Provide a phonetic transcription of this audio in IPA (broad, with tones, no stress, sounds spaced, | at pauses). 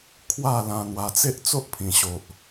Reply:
kʰ w a˥˧ l ã˧ n̪ w a˧ t͡s e˦ ʔ t͡s o˦ ʔ pʰ ĩ˨˩ ɕ o˨ ʔ